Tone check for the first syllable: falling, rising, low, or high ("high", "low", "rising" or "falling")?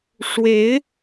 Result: rising